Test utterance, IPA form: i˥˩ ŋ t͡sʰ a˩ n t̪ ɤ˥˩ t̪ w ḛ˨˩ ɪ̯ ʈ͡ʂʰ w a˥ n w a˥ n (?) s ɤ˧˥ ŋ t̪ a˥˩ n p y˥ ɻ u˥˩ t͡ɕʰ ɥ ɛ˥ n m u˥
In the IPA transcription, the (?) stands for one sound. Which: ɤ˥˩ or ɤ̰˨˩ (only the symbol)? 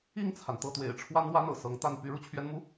ɤ̰˨˩